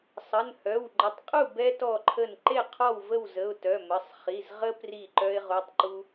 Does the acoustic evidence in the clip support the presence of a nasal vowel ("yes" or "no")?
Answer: no